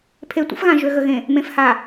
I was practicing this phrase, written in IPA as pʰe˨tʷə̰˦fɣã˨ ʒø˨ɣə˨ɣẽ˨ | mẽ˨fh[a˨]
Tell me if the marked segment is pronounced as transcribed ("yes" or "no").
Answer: yes